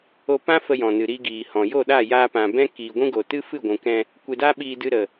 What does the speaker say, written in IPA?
o˧pã˦ fə˧jɔ̃˨nɨ˨ ɾi˧ɡiː˨hɔ̃˨ jo˦˨ɗa˦˨jaː˧pã˨ bɛ̃˦ kiː˨ɡʷũ˦ ɡo˨tɨ˦fɨ˦˨ ɡʷũ˨kɛ̃˧ | kʷe˧da˦ɓiː˧dɨ˧ ɾə˨

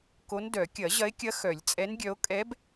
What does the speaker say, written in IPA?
ko˧˥ndœ˨˩˦ kʲɐ˨˩˦ʑɐ˧˥e̯kʲɐ˧˥ xœ˨˩˦lʲt͡sʼɛ˧˥nɡʲœ˧˥o̯ kʼɛ˧˥b

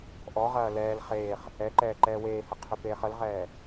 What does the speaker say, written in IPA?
ʔɔʁɐː lɛːl χeːχ | ɛǃɛː ǃɛːweːhə qʰʏpeːχəlʁɛː

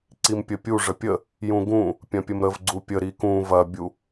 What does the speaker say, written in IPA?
ǀimpʲəpʲu ʐəpʲə | jũɡũ | pʲɐ̃pʲəmɾəv ɡ͡ǀupʲə ɾikũ vɐbʲu

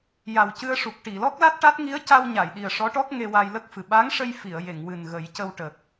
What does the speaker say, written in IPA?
ja˨˩wcɨ˧ə̯ʂu˨˩k̚ ʈi˨˩˨lɔ˦˥k̚la˦˥t̚ʈa˦˥t̚ ŋi˧˥ə̯ca˧w ɲa˨˩˨jɗi˨˩ə̯ʂɔ˧˥ʈɔ˦˥k̚ ŋe˧wa˧jlə˦˥k̚fɨ˨˩ ɓa˧˥ŋʂə˧j fi˨˩˨ə̯je˨˩˨ŋ wɨ˨˩nɣə˨˩˦jcə˧wʈə˨˩k̚

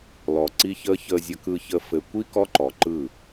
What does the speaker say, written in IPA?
lɔ˨ǀi˦çəː˦ çəː˨zʲə˨kɯ˨çə˨ fɘ˨kʷi˦ kɔ˦ ǃɔ˨ǃɯ˦˨

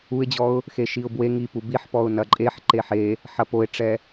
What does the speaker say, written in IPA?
uɪ̯d͡ʑɔʊ̯ | xeʃiʊ̯bwe ŋipu biħpɔʊ̯ nɐǃʼeħ ǃeħe | ħɐpoɪ̯ʈ͡ʂɛ

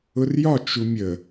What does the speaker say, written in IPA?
ʊrjɒ t͡ʃumʲə

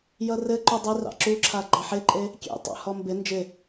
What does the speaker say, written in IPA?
jʌrɘ ǃudˤɪrɑ̰ ǁuǁʰa ɡ͡ǃɑħɪǃʼe | kʲḛtˤɑ̰ hɔmbɪ nd͡ʒɪ

